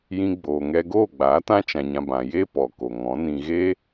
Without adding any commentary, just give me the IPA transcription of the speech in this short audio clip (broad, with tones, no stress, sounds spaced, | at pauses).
j ĩ˧ ɡ͡b oː˨ ŋ ɛ˧ ɡ oː˦˨ ɡ͡b aː˨˦ t ã˦ t͡ʃ ã˧ ɲ ã˧ b ã˨ j e˦ p ɔ˨ k o˨ ŋ ɔ̃˨˦ n ĩ˧ ɣ e˦